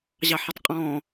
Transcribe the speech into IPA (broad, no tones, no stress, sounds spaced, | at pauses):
ʑ ɑ ħ ɪ tˤ qʼ ɔ̃